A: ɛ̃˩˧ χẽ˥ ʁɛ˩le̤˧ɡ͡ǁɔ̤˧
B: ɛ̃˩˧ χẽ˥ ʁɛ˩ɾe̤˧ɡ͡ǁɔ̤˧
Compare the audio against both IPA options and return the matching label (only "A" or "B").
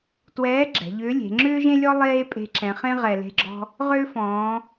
A